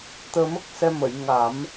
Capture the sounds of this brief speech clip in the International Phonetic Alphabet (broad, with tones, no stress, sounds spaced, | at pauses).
t̪ əː˧ m ə˦˥ k̚ s ɛ˧ m ə˨˩˨ j ŋ a˨˩˦ m